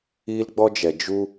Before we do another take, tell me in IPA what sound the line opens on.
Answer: iː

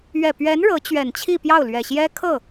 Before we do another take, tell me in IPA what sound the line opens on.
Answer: ɥ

